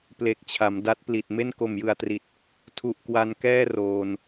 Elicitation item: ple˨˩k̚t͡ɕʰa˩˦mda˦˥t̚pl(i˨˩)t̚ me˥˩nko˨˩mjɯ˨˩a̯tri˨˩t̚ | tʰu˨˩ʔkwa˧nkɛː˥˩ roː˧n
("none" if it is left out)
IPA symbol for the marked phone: i˨˩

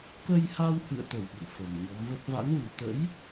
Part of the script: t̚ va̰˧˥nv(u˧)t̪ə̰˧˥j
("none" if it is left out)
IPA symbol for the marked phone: u˨˩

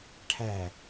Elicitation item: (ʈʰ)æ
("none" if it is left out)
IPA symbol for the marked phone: ʈʰ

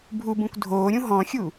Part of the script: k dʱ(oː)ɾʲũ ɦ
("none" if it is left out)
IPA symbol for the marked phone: oː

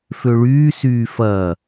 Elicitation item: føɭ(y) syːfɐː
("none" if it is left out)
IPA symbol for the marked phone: yː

